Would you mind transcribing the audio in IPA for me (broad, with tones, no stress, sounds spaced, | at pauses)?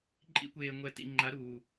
ǃʼ ḭ˦ kʷ eː˨ ŋʷ ɛ˨ t ḭ˨ ŋ͡ǃ a˨˦ ɾ uː˨